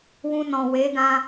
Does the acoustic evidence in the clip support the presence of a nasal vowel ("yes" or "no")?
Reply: yes